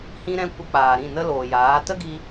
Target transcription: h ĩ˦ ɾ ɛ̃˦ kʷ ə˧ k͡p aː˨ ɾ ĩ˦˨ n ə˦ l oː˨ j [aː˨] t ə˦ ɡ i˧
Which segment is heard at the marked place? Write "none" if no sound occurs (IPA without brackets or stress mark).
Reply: aː˨˦